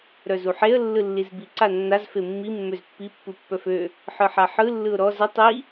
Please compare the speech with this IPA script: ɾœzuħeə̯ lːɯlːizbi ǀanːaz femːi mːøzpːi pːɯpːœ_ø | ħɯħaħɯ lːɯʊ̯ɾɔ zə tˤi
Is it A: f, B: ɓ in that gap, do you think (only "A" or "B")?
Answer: A